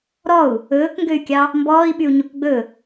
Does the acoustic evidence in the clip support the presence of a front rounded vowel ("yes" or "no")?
yes